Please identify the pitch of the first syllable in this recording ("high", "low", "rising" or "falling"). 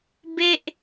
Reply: falling